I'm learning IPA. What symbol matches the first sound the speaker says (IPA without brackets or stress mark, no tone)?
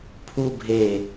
pʰ